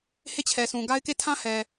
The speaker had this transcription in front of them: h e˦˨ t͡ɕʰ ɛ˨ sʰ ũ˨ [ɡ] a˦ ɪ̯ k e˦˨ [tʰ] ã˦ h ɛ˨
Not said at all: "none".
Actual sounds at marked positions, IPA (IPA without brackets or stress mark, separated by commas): ɡ, tʰ